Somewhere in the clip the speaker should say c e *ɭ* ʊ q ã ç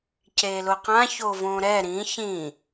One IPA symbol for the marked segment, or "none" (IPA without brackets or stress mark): l